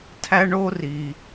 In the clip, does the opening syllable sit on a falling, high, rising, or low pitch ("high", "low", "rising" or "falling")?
high